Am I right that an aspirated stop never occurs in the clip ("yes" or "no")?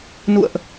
yes